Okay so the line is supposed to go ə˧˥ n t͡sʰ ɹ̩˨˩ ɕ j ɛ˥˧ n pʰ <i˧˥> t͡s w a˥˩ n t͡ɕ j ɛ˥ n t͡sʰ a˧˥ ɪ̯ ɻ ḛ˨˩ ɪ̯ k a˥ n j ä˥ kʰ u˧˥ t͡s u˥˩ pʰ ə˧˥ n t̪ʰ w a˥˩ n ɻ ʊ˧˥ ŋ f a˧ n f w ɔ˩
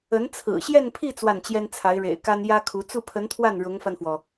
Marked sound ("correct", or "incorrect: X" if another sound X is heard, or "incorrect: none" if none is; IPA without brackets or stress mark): incorrect: i˥˧